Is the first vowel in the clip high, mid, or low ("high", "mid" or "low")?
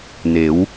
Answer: mid